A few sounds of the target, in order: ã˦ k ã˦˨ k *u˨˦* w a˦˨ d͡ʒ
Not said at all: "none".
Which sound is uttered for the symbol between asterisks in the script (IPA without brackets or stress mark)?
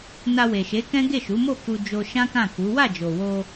u˨˦